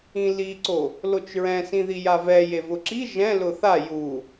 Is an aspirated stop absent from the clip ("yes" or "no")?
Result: yes